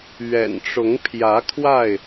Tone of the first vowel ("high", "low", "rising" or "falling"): low